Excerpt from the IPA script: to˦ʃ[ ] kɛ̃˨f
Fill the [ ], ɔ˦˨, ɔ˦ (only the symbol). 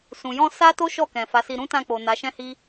ɔ˦˨